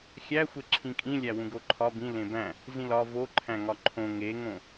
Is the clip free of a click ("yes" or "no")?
no